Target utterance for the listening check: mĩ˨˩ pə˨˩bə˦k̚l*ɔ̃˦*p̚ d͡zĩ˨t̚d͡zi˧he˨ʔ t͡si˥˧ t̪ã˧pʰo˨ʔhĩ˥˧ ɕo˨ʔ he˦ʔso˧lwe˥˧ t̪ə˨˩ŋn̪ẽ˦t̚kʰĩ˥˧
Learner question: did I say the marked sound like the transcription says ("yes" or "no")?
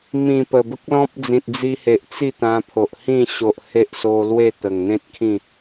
yes